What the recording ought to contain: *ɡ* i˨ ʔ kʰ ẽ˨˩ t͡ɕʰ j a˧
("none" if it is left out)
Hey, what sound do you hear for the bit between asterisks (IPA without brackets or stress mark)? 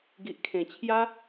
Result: ɡ